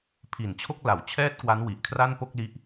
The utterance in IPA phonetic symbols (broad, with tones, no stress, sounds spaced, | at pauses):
pʰ i˨˩ n t͡ɕʰ o˥˩ k̚ l a˩˦ w t͡ɕʰ ɛː˥˩ t̚ k w a˦˥ n w i˨˩ ʔ kʰ r a˥˩ n p o˥˩ k̚ l i˦˥ ʔ